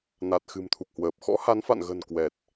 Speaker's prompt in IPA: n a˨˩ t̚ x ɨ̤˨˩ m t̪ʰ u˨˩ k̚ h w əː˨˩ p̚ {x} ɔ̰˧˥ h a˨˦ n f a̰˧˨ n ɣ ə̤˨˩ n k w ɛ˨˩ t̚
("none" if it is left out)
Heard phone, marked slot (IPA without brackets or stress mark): x